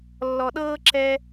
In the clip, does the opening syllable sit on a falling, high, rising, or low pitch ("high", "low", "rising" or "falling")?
low